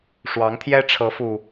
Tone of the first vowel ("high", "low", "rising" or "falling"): rising